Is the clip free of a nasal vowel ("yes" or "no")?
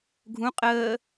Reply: no